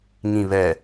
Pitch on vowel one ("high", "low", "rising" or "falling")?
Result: low